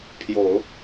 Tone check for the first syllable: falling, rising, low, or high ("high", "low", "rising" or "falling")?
low